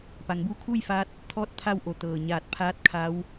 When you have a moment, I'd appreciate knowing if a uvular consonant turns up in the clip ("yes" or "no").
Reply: no